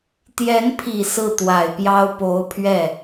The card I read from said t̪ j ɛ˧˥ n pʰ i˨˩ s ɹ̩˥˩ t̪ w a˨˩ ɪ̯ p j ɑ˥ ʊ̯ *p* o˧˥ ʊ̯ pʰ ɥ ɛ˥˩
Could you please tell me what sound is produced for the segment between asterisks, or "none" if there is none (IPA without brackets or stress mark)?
p